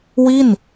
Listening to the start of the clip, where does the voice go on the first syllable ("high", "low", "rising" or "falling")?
falling